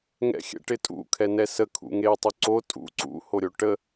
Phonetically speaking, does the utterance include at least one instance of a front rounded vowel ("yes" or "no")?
yes